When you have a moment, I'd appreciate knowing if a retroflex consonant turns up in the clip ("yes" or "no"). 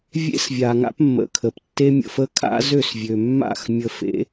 no